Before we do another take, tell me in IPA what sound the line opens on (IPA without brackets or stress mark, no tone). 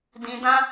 d